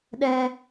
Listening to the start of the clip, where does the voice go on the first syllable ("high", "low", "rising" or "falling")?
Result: high